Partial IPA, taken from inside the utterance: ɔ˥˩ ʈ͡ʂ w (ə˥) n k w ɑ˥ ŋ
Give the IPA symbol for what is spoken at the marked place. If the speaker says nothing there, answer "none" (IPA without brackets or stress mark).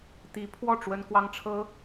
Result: ə˥